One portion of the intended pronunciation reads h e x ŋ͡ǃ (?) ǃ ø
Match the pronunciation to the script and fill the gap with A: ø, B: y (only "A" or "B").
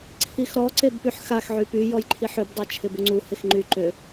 B